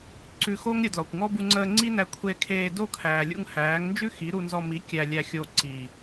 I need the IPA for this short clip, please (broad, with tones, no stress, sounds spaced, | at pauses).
ǀ ʉ˧ x o˦ ŋ ɾʲ ə˧ d l ɔ˨ kʷ ŋ ɔ˦ b u˧ ŋ͡ǀ əː˧ ŋ͡ǀ i˦ n æ˧ kʷʰ e˧ kʰ eː˧ d o˦˨ kʰ æː˨ lʲ ṵ˧ ŋ h æː˨˦ ŋ n d͡ʒ ʉ˦ x i˨˦ ɾ u˧ n z ɔ˧ m i˨˦ kʲ æ˧ lʲ æ˧ xʲ o˧ ǀ i˨